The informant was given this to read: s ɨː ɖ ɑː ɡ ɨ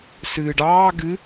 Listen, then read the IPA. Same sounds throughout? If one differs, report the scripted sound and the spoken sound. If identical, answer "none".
none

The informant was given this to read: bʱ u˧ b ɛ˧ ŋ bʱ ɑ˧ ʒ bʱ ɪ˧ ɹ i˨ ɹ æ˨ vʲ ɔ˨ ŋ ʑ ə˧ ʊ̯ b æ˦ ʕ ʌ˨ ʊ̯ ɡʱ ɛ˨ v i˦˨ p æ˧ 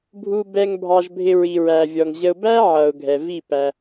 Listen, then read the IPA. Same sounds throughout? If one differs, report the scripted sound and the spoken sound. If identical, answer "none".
none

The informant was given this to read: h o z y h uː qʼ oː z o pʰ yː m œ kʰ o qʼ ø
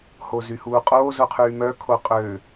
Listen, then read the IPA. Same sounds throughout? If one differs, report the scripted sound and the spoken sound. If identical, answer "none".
pʰ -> qʰ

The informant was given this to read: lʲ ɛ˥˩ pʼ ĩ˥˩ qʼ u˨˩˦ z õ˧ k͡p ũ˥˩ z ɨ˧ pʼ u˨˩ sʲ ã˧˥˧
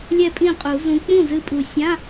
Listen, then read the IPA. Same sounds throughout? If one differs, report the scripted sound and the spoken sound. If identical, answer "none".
õ˧ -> ũ˧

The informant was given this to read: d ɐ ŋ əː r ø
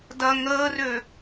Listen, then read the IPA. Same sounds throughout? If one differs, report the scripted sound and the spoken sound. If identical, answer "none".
none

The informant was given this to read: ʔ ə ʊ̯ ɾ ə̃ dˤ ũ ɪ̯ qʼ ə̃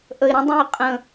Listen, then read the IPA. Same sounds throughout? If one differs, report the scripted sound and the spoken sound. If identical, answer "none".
ʊ̯ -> ɪ̯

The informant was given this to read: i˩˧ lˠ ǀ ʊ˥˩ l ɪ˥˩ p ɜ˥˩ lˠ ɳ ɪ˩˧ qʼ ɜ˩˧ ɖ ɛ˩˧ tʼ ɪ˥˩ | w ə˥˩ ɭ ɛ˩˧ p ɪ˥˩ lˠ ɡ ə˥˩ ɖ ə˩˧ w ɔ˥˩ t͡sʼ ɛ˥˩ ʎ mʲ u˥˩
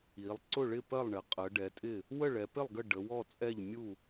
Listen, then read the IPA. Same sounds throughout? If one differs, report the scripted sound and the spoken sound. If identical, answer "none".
l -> ɭ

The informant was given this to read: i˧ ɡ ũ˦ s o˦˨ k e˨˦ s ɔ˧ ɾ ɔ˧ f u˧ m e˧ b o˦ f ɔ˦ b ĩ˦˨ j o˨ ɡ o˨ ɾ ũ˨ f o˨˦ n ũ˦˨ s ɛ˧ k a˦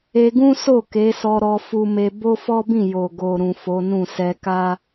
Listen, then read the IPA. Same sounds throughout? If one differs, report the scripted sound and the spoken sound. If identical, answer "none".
i˧ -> e˧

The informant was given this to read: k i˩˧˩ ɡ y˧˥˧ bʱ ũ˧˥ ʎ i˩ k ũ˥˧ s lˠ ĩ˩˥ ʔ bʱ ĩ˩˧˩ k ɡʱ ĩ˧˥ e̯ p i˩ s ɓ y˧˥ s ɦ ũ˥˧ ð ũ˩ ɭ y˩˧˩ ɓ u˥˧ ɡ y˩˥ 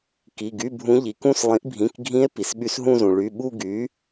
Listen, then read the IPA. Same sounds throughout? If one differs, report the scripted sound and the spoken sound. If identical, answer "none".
ð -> z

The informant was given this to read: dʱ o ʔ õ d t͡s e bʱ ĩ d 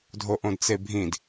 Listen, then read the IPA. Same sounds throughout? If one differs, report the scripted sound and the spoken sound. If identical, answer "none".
none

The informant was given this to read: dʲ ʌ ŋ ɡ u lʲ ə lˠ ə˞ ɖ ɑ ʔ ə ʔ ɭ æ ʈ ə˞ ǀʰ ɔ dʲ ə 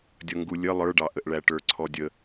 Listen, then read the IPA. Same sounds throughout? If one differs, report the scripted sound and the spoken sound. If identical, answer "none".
none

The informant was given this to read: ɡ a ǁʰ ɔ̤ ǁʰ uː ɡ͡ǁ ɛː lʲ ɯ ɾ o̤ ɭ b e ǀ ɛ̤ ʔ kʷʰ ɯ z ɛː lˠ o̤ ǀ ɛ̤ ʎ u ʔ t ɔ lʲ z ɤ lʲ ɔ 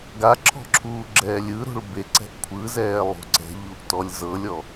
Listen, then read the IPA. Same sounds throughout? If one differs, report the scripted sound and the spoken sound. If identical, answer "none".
none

